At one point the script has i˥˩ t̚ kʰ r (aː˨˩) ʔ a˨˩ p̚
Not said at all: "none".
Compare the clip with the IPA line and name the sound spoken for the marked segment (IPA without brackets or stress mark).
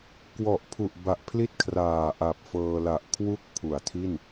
aː˨˩